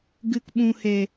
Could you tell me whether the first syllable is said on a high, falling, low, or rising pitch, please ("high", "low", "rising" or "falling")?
low